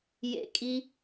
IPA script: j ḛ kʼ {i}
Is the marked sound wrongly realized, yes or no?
no